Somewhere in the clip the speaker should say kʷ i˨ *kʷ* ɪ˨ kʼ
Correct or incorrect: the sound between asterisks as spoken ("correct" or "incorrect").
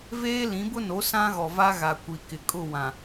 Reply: incorrect